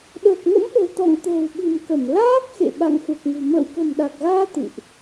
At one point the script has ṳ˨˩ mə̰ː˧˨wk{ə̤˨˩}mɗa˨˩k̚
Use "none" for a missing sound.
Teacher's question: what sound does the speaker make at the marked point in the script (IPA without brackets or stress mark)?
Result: ə̤˨˩